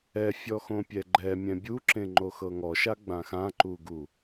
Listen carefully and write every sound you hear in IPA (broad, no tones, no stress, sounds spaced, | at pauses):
ɛ fʲ ɔ x õ pʲ ɛ ɡ͡ǃ ɛ mʲ ɛ̃ bʲ u ǁ ẽ ŋ͡ǃ o x ɤ ŋ ɔ ʃ a ɡ͡b ã x ã ǃ u ɡ u